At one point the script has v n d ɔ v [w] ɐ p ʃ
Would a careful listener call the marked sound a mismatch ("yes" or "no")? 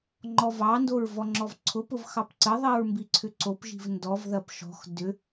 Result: yes